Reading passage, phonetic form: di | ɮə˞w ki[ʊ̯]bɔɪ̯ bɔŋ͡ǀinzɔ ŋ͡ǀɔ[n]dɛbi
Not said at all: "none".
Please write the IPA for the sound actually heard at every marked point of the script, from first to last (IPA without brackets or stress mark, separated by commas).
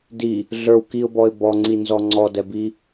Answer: ʊ̯, none